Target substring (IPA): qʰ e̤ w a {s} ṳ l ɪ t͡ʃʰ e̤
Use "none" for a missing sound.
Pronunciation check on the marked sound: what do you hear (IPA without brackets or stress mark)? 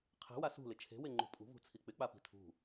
s